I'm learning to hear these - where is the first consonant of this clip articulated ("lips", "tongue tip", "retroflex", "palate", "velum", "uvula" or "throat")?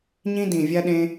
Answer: palate